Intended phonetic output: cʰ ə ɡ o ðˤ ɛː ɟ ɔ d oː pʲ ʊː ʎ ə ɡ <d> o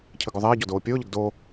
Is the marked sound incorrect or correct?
correct